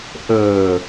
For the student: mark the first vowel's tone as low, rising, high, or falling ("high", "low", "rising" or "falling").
low